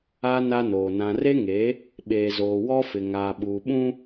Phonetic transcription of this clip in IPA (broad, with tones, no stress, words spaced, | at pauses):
a˦ na˦noː˨ nã˨re˦ŋe˨˦ | ɓeː˨zoː˨wɔ˦fɪ˨ ŋaː˨ ɓuː˨ɓũ˦